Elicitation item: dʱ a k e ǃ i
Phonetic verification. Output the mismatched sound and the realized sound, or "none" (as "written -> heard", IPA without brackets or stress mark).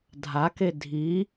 ǃ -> dʱ